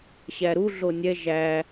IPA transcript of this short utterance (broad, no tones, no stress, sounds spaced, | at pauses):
ɕ æ ɾ u ɮ o nʲ ɛ ʒ æ